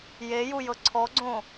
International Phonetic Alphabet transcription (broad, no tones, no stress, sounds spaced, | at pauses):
j e j u j ɤ ǀʰ ɔ ɡ͡ǀ õ